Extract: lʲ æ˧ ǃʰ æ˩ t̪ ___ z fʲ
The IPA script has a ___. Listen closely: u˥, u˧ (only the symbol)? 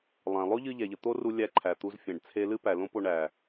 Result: u˧